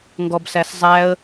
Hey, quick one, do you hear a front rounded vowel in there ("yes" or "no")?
no